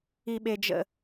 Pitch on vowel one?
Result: low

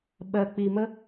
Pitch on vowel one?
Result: high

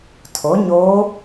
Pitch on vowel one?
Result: rising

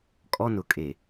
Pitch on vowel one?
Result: high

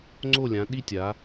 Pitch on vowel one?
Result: falling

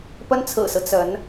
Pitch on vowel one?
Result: high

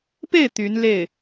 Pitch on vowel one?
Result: falling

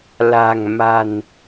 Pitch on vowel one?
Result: low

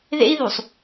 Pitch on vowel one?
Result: high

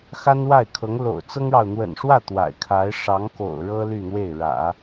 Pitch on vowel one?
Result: high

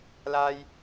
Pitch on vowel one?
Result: high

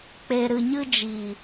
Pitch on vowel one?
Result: low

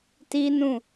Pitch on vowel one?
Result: high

